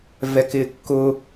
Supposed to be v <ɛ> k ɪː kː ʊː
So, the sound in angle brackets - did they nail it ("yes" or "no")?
yes